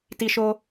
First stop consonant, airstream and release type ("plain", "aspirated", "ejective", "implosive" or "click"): plain